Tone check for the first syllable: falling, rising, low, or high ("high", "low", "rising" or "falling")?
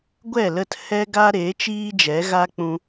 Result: falling